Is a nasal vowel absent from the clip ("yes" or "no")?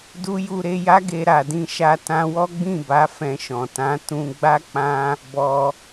no